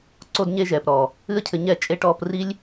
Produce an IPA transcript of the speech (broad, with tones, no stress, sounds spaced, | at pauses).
ǀ o˧ d ɲ e˧ ʒ ɛː˨ p ɾ ɔ˨ | ɨ˦ ə̯ cʰ ɘ˧ ɲ ɛ˦˨ t͡ʃʼ e˧ ʈ ɔː˧ p r i˦ lʲ